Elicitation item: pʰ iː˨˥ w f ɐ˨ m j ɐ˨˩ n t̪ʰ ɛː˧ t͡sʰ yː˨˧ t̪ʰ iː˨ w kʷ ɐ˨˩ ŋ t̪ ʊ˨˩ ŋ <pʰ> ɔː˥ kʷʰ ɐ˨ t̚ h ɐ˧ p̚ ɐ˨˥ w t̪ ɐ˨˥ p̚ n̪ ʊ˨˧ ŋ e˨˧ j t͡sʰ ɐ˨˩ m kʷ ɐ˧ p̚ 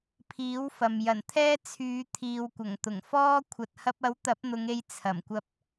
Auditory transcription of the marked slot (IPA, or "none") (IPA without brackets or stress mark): f